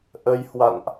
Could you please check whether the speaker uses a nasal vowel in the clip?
no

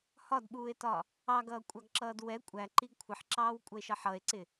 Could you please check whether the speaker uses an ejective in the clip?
yes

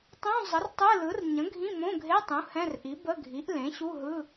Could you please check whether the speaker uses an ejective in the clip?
no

